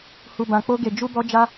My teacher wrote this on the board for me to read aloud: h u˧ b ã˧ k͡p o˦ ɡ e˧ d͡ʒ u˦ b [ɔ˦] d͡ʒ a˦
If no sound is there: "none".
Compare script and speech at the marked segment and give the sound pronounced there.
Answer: ɔ˦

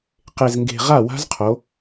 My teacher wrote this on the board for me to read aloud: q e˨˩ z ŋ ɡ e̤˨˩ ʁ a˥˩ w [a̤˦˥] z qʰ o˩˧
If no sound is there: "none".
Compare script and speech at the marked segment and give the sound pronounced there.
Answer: a̤˦˥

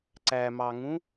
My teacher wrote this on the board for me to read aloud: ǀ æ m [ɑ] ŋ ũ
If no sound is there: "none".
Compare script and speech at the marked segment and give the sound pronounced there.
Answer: ɑ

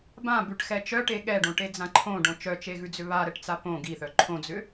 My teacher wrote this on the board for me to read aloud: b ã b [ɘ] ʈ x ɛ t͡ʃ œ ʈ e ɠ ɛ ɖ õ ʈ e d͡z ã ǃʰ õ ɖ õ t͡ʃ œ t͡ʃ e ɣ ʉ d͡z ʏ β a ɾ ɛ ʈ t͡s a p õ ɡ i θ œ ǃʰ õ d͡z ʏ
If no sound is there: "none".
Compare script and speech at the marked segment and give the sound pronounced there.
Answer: ʉ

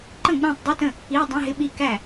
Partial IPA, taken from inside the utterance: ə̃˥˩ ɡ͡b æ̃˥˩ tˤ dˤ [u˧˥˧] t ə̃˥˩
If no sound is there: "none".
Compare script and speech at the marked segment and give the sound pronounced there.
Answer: u˧˥˧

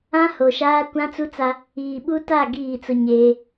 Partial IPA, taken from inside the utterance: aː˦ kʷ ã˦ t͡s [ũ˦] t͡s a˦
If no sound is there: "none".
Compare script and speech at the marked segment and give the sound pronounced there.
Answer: u˦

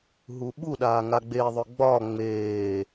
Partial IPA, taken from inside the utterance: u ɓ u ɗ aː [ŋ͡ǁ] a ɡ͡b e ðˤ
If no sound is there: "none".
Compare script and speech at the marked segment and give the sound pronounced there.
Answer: ŋ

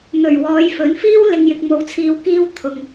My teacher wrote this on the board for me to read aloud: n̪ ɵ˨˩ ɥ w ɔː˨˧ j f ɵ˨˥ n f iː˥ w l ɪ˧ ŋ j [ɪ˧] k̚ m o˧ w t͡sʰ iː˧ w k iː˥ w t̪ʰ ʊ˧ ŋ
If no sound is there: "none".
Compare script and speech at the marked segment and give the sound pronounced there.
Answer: ɪ˧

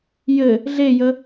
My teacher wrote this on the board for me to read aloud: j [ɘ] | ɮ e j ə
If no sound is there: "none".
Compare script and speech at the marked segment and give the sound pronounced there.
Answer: ɘ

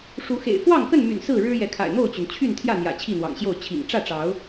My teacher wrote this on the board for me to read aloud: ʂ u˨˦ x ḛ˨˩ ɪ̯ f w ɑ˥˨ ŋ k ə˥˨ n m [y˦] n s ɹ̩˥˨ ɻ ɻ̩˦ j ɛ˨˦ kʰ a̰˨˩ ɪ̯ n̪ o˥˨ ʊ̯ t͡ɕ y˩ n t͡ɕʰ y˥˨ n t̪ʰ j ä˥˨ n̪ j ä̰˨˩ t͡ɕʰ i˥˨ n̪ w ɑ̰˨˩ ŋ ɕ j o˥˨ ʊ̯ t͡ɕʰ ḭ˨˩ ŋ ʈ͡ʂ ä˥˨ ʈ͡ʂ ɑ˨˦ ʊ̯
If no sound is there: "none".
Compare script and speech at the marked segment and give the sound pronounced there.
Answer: y̰˨˩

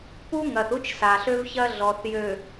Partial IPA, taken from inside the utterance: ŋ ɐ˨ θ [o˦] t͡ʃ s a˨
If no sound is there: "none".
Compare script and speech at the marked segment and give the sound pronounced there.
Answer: u˦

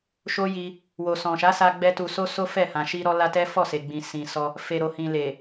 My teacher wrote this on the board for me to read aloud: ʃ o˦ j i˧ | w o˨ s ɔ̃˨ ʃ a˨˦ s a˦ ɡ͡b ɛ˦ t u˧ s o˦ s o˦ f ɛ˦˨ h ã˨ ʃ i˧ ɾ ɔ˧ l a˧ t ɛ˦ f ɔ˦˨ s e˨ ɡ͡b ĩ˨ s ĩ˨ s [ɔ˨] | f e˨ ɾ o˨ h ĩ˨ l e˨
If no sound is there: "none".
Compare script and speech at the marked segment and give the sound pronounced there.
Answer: ɔ˧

